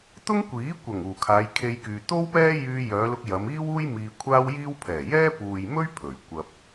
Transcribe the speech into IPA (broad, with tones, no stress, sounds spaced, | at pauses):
t̪ ʊ˥ ŋ kʷ iː˨˥ kʷ ɐ˨˩ ŋ uː˨˩ kʰ aː˨˧ j kʰ e˧ j k yː˨ t̪ o˥ w p ɛː˥ j yː˧ j œː˨˧ l ʊ˧ k̚ j ɐ˨˧ m iː˥ w uː˥ j m iː˧ kʷʰ aː˥ w j iː˥ w pʰ ɛː˨˩ j ɛː˥ p uː˨ j m ɵ˥ ɥ pʰ ɵ˨˩ ɥ kʷ ɐ˧ p̚